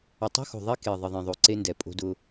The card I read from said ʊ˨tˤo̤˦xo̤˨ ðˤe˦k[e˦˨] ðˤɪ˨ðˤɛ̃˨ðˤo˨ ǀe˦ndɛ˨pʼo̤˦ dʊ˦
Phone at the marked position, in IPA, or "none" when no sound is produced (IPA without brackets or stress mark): e˨